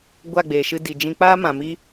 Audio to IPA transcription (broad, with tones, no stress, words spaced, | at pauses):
ɡʷa˦˨ɡ͡beː˨ʃɨ˧ di˨d͡ʒĩ˧k͡paː˦mã˨ mi˦